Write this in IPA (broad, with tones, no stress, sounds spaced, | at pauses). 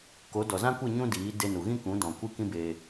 k o˨˦ d ɔ˨ z ã˦ kʷ ɨ˦˨ ɲ ũ˦ d iː˨˦ d e˧ n u˨ ɣ ĩ˦ k ũ˨˦ d ɔ̃˨ kʷ ɨ˦ k ĩ˦ b e˧